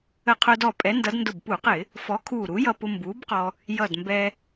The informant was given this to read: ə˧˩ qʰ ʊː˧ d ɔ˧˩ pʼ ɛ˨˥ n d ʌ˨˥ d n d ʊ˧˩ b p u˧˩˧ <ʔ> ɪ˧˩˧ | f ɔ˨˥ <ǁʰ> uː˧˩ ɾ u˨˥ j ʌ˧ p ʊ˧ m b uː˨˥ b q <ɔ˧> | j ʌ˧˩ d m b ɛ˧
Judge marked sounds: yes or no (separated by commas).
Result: no, no, yes